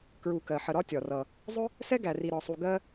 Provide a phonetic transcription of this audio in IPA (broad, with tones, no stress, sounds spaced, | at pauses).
k ɹ u˨ k ɜ˩ ħ ə˨ ɾ ɒ˥ tʲ ɒ˩ r ʌ˨ | zˤ ʊ˥ | s ɛ˥ ɡ æ˨ r i˨ ɾ ɒ˨ sˤ u˨ ɡ ɜ˥